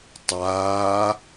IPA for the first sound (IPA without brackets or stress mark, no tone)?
tˤ